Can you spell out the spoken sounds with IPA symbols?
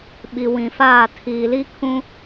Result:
ɓ i˨ w ĩ˨ f aː˦˨ tʰ iː˨ l i˦ kʰ ũ˦

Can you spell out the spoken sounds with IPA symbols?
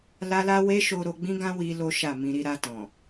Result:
l a˦ l a˦ w e˦ ʃ o˧ ɾ o˧ ɡ͡b ĩ˦ ɡ ã˦ w i˦ l o˦ ʃ a˦˨ m ĩ˧ ɾ i˧ ɾ a˧ t ɔ̃˨

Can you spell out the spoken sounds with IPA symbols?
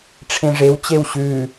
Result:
ʈ͡ʂʰ ẽ ʐ e w t͡ɕ e w ɕ ʉ

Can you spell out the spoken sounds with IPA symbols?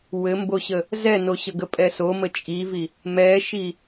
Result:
w ɘ m b o ɕ ə | z ɛ n o ɕ ə ɡ ə pʼ ɛ s o m ə t͡ʃʼ i v i | m ɛ ʃ i

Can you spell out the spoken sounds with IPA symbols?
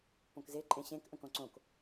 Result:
p õ k z e ǃʼ ẽ ɕ ẽ k ʔ ə̃ k õ ǀ õ k

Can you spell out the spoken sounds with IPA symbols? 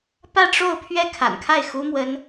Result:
p ä˥˧ ʈ͡ʂ o˥˧ ʊ̯ pʰ ɥ ɛ˥˩ kʰ a̰˨˩ n kʰ a˥˩ ɪ̯ x u˥ m w ə˥ n

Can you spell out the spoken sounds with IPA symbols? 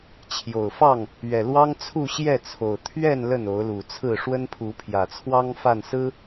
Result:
t͡ɕʰ j o˨˩ ʊ̯ f ɑ˥˨ ŋ | ɥ ɛ˨˩ l w ɑ˦ ŋ t͡sʰ u˥˨ ɕ j ɛ˥˨ t͡sʰ o˨˩ ʊ̯ t̪ʰ ɥ ɛ˥˨ n l ə˥˨ n o˨˦ ʊ̯ l u˨˩ t͡sʰ ɹ̩˥˨ ʂ w ə˦ n pʰ u˨˦ pʰ j ä˨˩ t͡sʰ w ɑ˦ ŋ f a˥˨ n s ɹ̩˦

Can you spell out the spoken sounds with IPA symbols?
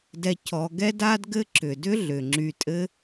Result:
d ɛ˧ c ɔ˧ ɡ ɛ˦ d a˦ d ɡ ɘ˦ ǁ ʏ˨ d ʏ˦ ɮ ʏ˨ ŋ͡ǁ y˧ tʼ ɘ˦

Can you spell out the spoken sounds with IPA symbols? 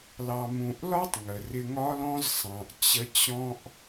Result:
l ɑ˨ m ũ˨ ʔ l ɒ˦ tˤ ŋ ə˨ r ɪ˧ ŋ ɒ˦ l ɔ̃˦ z sˤ ɑ̃˨ ʔ t͡ɕ ə˧ t͡ɕ ɔ̃˦ ʔ

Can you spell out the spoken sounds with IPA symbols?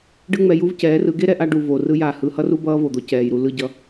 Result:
ɖ ɯ˦ ŋ͡m ɛ˧ j u˦ v c ɛː˨˦ r ɯ˨˦ ɡ e˦ ɾ ɛ˧ ʔ a˧ ɖ u˨ v o˨ r ɯ˦ j aː˧ h ɯ˨ h ʌ˦ r u˦ b ʌː˦ v o˨ d̪ o˧ c ɛː˨ j ɾ u˧ l ɯ˧ ɟ ʌ˧

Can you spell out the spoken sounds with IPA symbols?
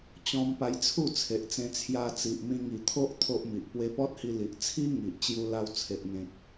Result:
t͡ɕ ɔ̃˦ m p a˧ j t͡sʰ u˥˧ t͡sʰ e˨ ʔ t͡s ẽ˧ t͡sʰ j a˧ t͡s i˨ ʔ m ĩ˧ ŋ i˨˩ t̪ʰ o˦ ʔ t̪ʰ o˦ ʔ m i˨ ʔ p w e˧ p ɔ˦ t̚ h i˧ l i˨ ʔ t͡sʰ i˦ ŋ i˨ ʔ t͡ɕ j u˧ l a˧ w t͡sʰ e˨ ʔ ŋ ẽ˨ k̚

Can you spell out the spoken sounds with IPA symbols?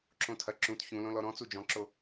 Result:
ǁ õ tʰ ɐ ǁ ũ t ç ũ l õ l ɔ ɾ ɔ̃ t͡s u d͡ʒ ɔ̃ ǁ o

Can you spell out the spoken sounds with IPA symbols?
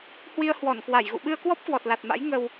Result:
h w i˧ ə̯ h w ɔ˧˩ n k w a˧˩ j ɣ ṵ˧˨ ɓ ɨ˧ ə̯ k w ɔ˦˥ p̚ k w ɔ˨˩ t̚ l a˨˩ t̚ m a̰˧˥ j ŋ ə˧ w

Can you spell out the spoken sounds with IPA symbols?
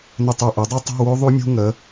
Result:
n ə˧˩ tˤ o˧˩ ʔ u˩˧ dˤ i˦˥ tˤ o̤˧˥˧ w o˦˥ ðˤ u˦˥ mʲ ṳ˦˥ ŋ ə˩˧

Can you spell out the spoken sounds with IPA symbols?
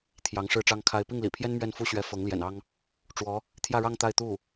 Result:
t̪ʰ j ɑ˧˥ ŋ ʂ ɻ̩˥ ʈ͡ʂ ɑ˥ ŋ kʰ a˥ ɪ̯ p i˥˩ ŋ l ḭ˨˩ pʰ j ɛ˥ n m ɥ ɛ˥˩ n f u˥ ɕ ɥ ɛ˧˥ f ɤ˧˥ ŋ l j ɛ̰˨˩ n ɑ˥ ŋ | ʈ͡ʂ w ɔ˧˥ | t̪ʰ j ä˥˧ ɻ ɑ˥˧ ŋ t̪ a˥˧ ɪ̯ t̪ u˥˩

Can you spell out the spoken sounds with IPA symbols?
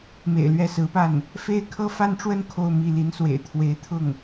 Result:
m ḛ˨˩ ɪ̯ l ɥ ɛ˥˩ s ɹ̩˧˥ p a˥˩ n | f e˥˩ ɪ̯ kʰ ɤ˥ f a˥ n ʈ͡ʂ w ə˥ n kʰ o˥˧ ʊ̯ m i˥˩ l i˧˥ n s w ḛ˨˩ ɪ̯ t̪ʰ w e˧˥ ɪ̯ t̪ʰ ʊ˥˩ ŋ

